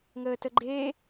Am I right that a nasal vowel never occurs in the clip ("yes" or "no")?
yes